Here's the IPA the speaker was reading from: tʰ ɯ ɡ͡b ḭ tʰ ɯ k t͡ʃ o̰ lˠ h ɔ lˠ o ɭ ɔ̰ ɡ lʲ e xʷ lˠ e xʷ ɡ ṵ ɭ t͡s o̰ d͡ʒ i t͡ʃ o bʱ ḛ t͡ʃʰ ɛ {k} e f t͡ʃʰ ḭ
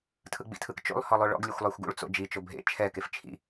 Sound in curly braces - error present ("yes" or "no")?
no